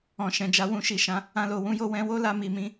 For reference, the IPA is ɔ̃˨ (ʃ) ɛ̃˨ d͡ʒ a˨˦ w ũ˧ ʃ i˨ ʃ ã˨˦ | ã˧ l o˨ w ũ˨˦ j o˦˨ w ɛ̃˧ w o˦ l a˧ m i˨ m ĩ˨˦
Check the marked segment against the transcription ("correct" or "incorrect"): correct